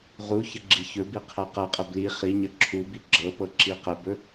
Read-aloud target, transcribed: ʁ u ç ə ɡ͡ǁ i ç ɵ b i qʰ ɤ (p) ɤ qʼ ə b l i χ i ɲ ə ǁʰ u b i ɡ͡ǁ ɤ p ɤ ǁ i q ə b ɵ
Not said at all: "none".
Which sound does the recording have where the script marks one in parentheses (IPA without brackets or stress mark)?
q